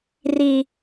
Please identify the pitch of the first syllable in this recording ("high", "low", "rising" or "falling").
high